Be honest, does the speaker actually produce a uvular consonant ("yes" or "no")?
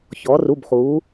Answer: yes